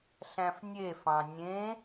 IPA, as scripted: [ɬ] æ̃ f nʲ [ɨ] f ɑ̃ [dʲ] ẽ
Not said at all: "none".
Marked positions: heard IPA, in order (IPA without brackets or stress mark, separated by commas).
ɬ, e, nʲ